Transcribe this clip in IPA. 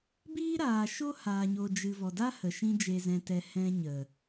b iː˦ ɾ aː˨ ʃ o˦ h aː˨ ɲ o˨ d͡ʒ ɨ˨ v ɔ˨ d a˦ h ə˨ ʃ ĩ˧ d͡ʒ e˨ z ɛ̃˨ t ɛ˨ h ɛ̃˧ ɲ ə˨

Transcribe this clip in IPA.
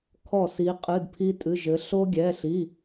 kʰ ɔ˥˩ s i˧˥ qʼ ɨ˧˥˧ d pʰ i˥ tʼ ɨ˧˥˧ ʒ ɘ˧˥ ɬ o˥ ɡʲ ɛ˧˥˧ ɬ i˧˥˧

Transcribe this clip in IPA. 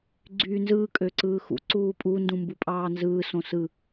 ɡ͡ǀ yː n z ɯː kʼ ø ǀ ɯː x ṵ ǀ uː pʼ u n d ũ m b u pʼ ɑː n z ɯː s õ s ɯ

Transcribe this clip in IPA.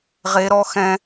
ʁ e˦˥ ɾ ɔ˦˥ x ɛ̃˦˥

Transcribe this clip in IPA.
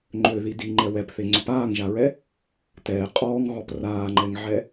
ŋ͡ǃ ø ð i d i ŋ͡ǃ ɛ w ɛ p θ e ŋ͡ǀ ø p aː ŋ ʒ a ɹ ɛ | t ɛː qʼ ɔː ŋ ɣ ɔ p r aː ŋ͡ǃ ɛ ŋ ʕ ɛ

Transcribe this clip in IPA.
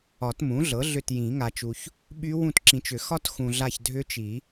ɒ˨˩˦ t m ũ˩˥ ɮ ɤ˩˥ ɮ ʏ˦˨ t j ĩ˨˩˦ ŋ a˨ t͡ʃ u˨ ç | ɓ y˦˥ w ũ˦˨ t ǁ ĩ˨ t͡ʃ ʏ˨˩˦ x ɒ˦˥ t x ũ˨ ɮ a˦˨ ç dʱ ʏ˦˥ t͡ʃ i˨˩˦

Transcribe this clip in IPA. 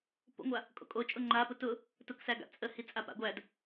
p o̰ ŋʷ a | kʼ o̰ kʼ o t͡ʃʼ ʊ ŋ͡ǃ a p ʊ t ʊ | t ʊ k s æ ɡ a̰ t͡sʼ ə h i t͡sʼ a p a̰ ɡʷ æ d

